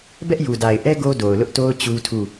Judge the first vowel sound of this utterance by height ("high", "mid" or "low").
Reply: mid